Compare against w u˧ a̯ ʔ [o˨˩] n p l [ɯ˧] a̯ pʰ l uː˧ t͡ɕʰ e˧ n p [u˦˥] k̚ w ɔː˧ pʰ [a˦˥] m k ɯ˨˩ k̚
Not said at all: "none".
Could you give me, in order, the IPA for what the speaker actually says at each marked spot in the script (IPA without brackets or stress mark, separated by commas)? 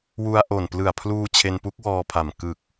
o˨˩, ɯ˨˩, u˦˥, a˨˩